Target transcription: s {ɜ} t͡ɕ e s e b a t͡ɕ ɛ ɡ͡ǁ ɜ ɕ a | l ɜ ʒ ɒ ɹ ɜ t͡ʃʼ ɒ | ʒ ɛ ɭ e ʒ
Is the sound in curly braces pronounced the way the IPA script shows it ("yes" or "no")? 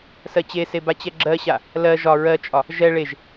yes